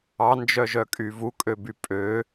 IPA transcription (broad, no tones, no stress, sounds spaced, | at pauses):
ɑ n d͡ʒ œ ʒ œ kʼ y v u kʼ ø b y pʼ ø